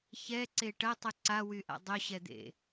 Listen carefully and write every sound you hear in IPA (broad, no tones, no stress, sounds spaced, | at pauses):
ç ɛ ǀ e ʈ ɐ tˤ y ǀ a w y ʔ a̰ dˤ ʊ ɕ ɛ d̪ ḛ